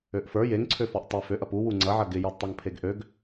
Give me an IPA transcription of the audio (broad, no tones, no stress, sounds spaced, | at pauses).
ø ʔ f ə˞ j e ŋ ǀʰ ø f ɔ ʔ tˤ ɪ f ø ʔ ɐ p u w u ŋ͡ǀ ɐ ʕ ɐ ɡ ɪ j ɔ d tˤ ɐ ŋ pʰ e ɡ ʔ ø ɡ